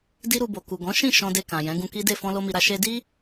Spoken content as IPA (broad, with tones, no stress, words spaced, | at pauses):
di˦ɾu˧bo˨ ku˨ ɡɔ̃˨˦ ʃĩ˦˨ ʃɔ̃˧de˧ kã˨jɛ̃˨˦ ɡũ˧ki˦de˦˨ fɔ̃˧lo˧mi˨ɾa˧ ʃe˧di˦